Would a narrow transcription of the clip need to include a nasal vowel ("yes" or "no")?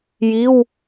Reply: no